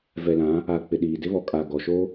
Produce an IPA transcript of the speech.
v ɛ˨ l ã˨˦ | a˨ k͡p ɪ˨ ɗ iː˨ d ɪ˦ β ɔ˨ kʼ a˨ ɡ ɔ˨ ʃ o˦

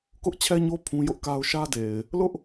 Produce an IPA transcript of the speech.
k ʊ˦ ʔ t͡ɕʰ ɛ˦ ɲ o˦ pʰ ũ˦ j ʊ˦ ʔ k a˦ ʊ̯ ʃ ä˦ d e˨ ɪ̯ | l ʊ˦ ʔ

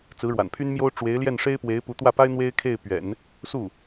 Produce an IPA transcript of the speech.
t͡s ɹ̩˧˥ ɻ w a̰˨˩ n pʰ y˥ n m j o˥ ʊ̯ ʈ͡ʂ w e˧˥ ɪ̯ l j ɛ˥˩ n ʂ e˥ ɪ̯ p w e˧˥ ɪ̯ p u˧˥ t̪ w ä˥˩ p a˥ ɪ̯ n̪ w e˥ ɪ̯ kʰ e˥˩ ɪ̯ p ɥ ɛ̰˨˩˦ n | s u˥˩

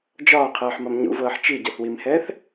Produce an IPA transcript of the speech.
d͡ʒ ɒː qʰ ɤː ħ m ɒ m ɲ ṵ v ɤː ħ t͡ʃ i ɟ ɤ θ w i m h ɛː θ

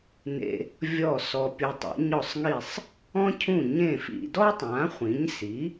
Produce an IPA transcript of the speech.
n ḛ˧ | vʲ ɔ˥˩ s ɔ˧ pʲ u˧ tˤ ḛ˩˥ ɲ ɔ˥˩ sˤ ŋ i˥˩ sˤ | ɔ̃˥ cʰ ũ˥˩ ɲ ẽ˥˩ f ḭ˧ d ɔ˥ tˤ ã˩˥ χʷ ĩ˩˥ ɲ s i˩˥

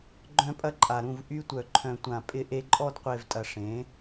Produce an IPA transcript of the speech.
ɡ͡ǃ œ̃˧ pʼ ɐ˧ ǃʼ a˨ ɾ ũ˦˨ v ʔ y˧ tʷ œ˨ ǃʰ œ̃˨ tʷ ã˨ pʼ ɪ˧ ʔ e˧ ǃʼ ɔ˧ d qʷ e˨ v tʼ ɐ˨ ʂ ẽ˨˦

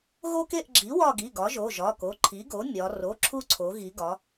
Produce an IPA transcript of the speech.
ɣ o˦ k e˦˨ ʔ ɡ͡ǁ i˩˥ w ɒ˦˨ ɡ i˩˧˩ ɡ ɒ˩˥ ʒ o˩˧˩ ʒ ɒ˩˧˩ k o˩˧˩ ǃʰ i˩˥ ɡ o˩˥ mʲ ɒ˩˧ r o˩˧˩ ǁʰ u˦˨ ǀʰ o˩˧ ɣ i˩˧ ɡ ɒ˩˧

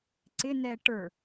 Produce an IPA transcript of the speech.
ǀ ɪ n ɛ ʈ ə˞

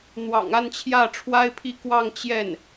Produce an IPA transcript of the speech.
n̪ w ɑ̰˨˩ ŋ a˥˧ n t͡ɕʰ j ä˥˩ ʈ͡ʂʰ w a˥ ɪ̯ pʰ i˥˧ k w ɑ˥˧ ŋ t͡ɕ j ɛ˥˩ n

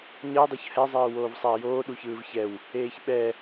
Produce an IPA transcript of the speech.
ɲ ʌ e̯ dˤ o ç h ɛ zˤ eː w oː v sˤ a e̯ j oː ɗ u ç ɯː v ç ɛ w | eː ç ɓ ɛ

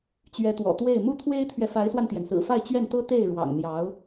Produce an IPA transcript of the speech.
t͡ɕ ɥ ɛ˧˥ t̪ w ɔ̰˨˩ t̪ w e˥˩ ɪ̯ m u˥ t̪ʰ w e˥ ɪ̯ t̪ʰ ɥ ɛ˨ f a˧˥ ɪ̯ s w a˧ n t̪ j ɛ˩ n s ɹ̩˨˩ f a˥˧ ɪ̯ t͡ɕ ɥ ɛ˥˩ n t̪ ɤ˥ t̪ e˥˩ ɪ̯ ɻ w ɑ̰˨˩ ŋ n̪ j ɑ˧˥ ʊ̯

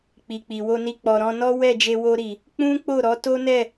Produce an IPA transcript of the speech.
k͡p i˨ k͡p i˨ w o˧ n i˧ k͡p ɔ˨ ɾ ɔ̃˧ n ɔ˦ w ɛ˦˨ d͡ʒ e˧ w o˧ ɾ i˨ | k͡p ũ˦ k͡p o˦˨ ɾ ɔ˨˦ t o˦ n ɛ˦˨

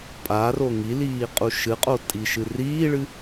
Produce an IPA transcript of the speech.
pʼ a r o ŋ i l iː qʼ u ʃ ɨ qʼ o tʼ i ʃ ɨ r iː ɭ ɨ

